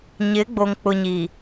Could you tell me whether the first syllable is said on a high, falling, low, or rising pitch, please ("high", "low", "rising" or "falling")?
rising